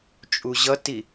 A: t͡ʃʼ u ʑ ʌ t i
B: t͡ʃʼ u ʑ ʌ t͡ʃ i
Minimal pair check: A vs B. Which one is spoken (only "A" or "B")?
A